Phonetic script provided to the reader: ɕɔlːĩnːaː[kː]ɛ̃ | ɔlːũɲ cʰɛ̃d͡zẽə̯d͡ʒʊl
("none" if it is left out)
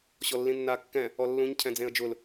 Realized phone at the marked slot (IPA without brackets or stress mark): kː